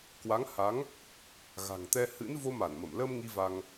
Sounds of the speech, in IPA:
kwa˨˦ŋha˨˦ŋ | ɣa̤˨˩ŋt̪ɛ˧ hɨ̰˧˥nvo˧ ma˧˩nmə˧˩mlə˧m ŋi˧va˧ŋ

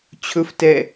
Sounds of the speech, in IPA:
t͡ɕʰɵftɛ

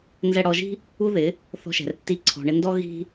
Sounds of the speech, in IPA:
nzɛ˧ɽɔ˧ʒi̤˦ | u˦ðɪ˨˦ | θɔ̤˧ʃɛ̤˨rtːi˧ ǀʰɔ̤˨ɳɪ˧ndɔ˦ ɣi̤˦

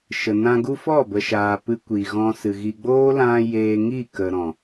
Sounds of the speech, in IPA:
ʃə˨nã˧ɡu˦ fɔ˦˨bə˨ʃaː˨ pɨ˧kʷi˨ɣɔ̃˧sɨ˨ ɣi˨ɡ͡boː˦lã˧ jeː˧ŋi˦˨kə˨ ɾɔ̃˨

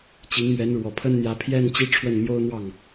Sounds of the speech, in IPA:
t͡ɕi˧˥ŋmɥɛ˧˥nɻwɔ˨˩pʰə˥n n̪jä˧˥pʰjɛ˥˧nt͡ɕi˥˧ ʈ͡ʂʰwə˥˩nmjo˥ʊ̯n̪wɑ˥˩ŋ

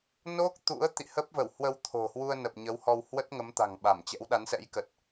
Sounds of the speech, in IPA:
no˦˥k̚t̪ṵ˧˥ə̯ t̪ḭ˧˨hə˦˥p̚və˧˩whwə˧w t̪ʰo̤˨˩hwu˧ə̯nə˨˩p̚ ɲə˨˦whɔ˧w hwə˦˥t̚ŋə˨˦mt̪a̤˨˩ŋɓa˧˩m t͡ɕɛ̰˧˥wɗa˨˦nsɛ̰˧˥jkə˨˩t̚

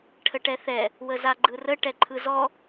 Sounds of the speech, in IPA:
ʈʰəʈɛθɛ | wəzaɡ͡ǃɯrə ʈɛǃʰɯzɔ

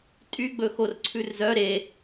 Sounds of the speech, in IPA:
tʼyɡ͡bɵxor ǀʰʉrzœ ɾe

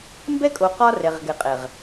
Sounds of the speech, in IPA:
mbɛ˦kʼo˨ qɒ˦ rɛ˨ʁɡɛ˨qʼɛ˨ʁ

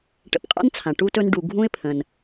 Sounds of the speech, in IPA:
ʈə̰˨pqʼa̰˥nt͡sʰã˩ ʈu˦tɵ˦n ɖu˨ ɡʱũ˥ɪ̯pʰə̃˩n

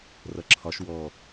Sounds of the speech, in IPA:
rʌǁʰɒʃ wɔ

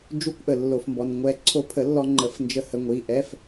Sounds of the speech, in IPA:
d͡ʒu˧˥˧kʷʔə˩lːo˩fmbɔ˩n ŋʷɛ˨˩˦ ǀʰo˧pʰə˨˩˦lːɔ˧ ŋ͡ǃə˨˩˦fnd͡ʒə˧ hə˩˥ŋʷi˩˧˩ʔɛ˧˥˧f

